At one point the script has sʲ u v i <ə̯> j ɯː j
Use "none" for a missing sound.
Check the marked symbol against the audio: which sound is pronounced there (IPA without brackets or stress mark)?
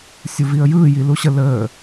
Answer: ə̯